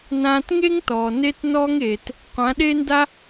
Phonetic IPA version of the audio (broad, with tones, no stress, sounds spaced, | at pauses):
n ãː˧ t ŋ e˦ ŋ t ɔː˨ n e˦ t n ɔː˦ ŋ eː˨ t | qʷ ã˨˦ ɗ e˦ n d a˦